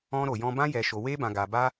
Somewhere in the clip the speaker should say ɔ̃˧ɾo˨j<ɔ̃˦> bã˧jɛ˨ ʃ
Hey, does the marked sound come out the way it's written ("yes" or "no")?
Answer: no